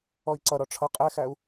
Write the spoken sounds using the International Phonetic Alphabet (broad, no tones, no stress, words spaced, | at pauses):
ɔi̯ǀʌɾɔ ʈ͡ʂʰʌ qʼæxæu̯